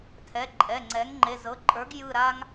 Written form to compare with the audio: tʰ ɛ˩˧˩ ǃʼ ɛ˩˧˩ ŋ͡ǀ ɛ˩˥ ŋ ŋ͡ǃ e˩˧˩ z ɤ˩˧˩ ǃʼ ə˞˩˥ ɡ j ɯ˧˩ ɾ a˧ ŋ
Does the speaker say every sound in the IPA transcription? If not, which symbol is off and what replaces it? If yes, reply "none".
none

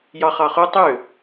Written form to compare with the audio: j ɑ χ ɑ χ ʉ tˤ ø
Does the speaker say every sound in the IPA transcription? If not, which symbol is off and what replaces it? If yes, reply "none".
none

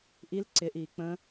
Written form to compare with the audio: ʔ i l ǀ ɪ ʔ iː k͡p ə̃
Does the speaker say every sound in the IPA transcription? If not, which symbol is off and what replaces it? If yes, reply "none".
none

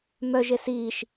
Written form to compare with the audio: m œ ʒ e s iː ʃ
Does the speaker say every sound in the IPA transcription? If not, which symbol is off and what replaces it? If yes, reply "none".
none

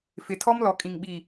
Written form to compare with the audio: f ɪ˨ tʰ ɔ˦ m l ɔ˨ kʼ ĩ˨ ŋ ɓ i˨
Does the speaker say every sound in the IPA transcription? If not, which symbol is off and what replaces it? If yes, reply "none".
none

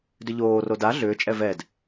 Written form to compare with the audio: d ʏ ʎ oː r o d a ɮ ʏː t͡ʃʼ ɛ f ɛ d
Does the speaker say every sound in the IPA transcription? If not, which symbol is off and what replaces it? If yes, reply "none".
f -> v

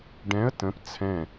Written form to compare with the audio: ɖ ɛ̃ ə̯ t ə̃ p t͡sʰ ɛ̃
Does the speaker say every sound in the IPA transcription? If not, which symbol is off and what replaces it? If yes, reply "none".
none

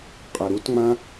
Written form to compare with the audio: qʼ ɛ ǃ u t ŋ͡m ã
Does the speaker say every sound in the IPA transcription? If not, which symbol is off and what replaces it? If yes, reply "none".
ǃ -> ɾ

